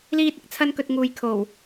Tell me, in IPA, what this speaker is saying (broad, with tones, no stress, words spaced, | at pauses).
liː˧t̚ɪ˧k̚t͡sʰɐ˧nkɵ˨t̚ ŋuː˨jkʰo˨˩w